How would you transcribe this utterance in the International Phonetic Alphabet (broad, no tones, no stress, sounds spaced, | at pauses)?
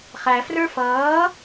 χ æ f r ə˞ f ʌː